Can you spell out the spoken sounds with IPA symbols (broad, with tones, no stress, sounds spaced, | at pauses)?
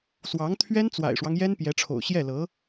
s w ɑ˧˥ ŋ t̪ʰ ɥ ɛ˥ n t͡s w a̰˨˩ ɪ̯ ʂ w ɑ˦ ŋ j ɛ˥ n p j ɛ˧˥ ʈ͡ʂʰ o̰˨˩ ʊ̯ ɕ j ɛ˥˩ l ɤ˧˥